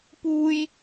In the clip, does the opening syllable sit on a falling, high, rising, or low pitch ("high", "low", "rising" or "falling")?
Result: high